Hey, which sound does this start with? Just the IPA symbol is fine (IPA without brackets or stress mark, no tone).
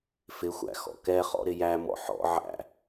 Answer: f